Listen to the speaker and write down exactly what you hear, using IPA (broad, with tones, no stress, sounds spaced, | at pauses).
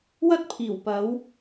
w ɐ˥ t̚ pʰ iː˨˩ w p ɐ˨˥ w